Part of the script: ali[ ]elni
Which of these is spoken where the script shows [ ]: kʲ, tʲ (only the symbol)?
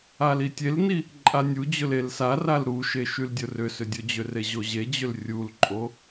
tʲ